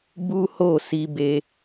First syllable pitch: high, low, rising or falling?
high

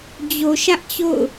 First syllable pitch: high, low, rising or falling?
low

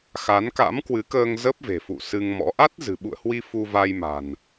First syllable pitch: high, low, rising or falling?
rising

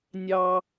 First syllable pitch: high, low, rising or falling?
high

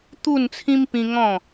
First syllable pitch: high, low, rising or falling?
falling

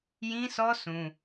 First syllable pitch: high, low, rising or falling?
high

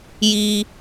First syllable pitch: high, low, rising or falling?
high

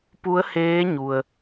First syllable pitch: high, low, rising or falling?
rising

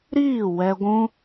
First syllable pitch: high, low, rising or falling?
falling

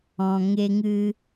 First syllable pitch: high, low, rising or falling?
low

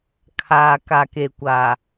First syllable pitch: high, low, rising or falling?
low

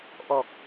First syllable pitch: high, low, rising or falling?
low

